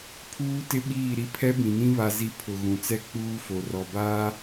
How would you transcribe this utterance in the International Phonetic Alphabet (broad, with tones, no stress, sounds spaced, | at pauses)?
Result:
pʰ uː˦ t ɪ˦ ɓ iː˦˨ ɾ i˦ pʰ ɛ˦ b ĩ˨ n ĩ˦ β a˦ z i˦ pʰ ʊ˨ ɣ ũ˨ t͡s ɛ˦ k͡p uː˦ f o˨ r ɔ˨ b aː˦